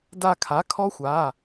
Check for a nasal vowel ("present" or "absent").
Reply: absent